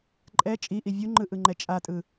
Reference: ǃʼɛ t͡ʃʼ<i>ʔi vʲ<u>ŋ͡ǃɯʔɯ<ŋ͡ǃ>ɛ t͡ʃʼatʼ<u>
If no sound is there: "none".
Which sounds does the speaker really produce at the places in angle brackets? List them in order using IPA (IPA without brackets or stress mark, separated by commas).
i, u, ŋ͡ǃ, ɯ